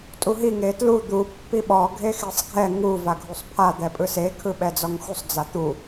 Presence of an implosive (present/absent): present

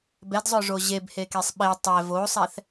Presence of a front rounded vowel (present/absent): present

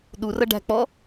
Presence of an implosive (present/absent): present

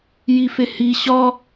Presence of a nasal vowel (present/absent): absent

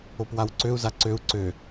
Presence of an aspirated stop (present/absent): absent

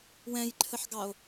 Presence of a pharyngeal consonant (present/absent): present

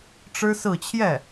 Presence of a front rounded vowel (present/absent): absent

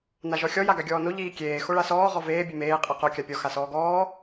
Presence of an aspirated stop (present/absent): absent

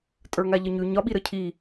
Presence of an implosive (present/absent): present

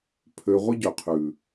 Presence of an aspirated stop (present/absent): present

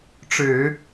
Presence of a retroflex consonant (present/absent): present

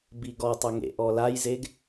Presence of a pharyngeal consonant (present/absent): absent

